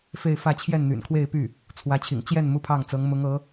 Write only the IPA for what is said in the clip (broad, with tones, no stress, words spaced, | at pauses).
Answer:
fe˥˧ɪ̯fä˥˧ t͡ɕʰjɛ˥˩nn̪y̰˨˩nkʰwe˥˧ɪ̯ py˥˩ | t͡sʰwä˧˥t͡ɕʰḭ˨˩ŋ t͡ɕjɛ˥˩n mu˥pʰɑ˥˩ŋt͡sɤ˧˥ŋ mʊ˧˥ŋɤ˧˥